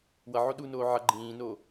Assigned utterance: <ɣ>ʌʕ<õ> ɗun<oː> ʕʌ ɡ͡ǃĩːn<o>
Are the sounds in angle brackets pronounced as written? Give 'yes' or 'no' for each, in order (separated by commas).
no, no, yes, yes